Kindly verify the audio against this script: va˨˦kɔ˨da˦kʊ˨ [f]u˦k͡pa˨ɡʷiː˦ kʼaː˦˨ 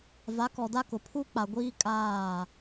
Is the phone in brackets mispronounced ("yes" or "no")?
yes